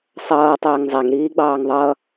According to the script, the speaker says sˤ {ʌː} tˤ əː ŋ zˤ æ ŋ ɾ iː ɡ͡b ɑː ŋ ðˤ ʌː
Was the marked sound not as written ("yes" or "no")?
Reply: no